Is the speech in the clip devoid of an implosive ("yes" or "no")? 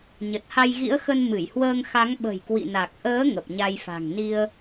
no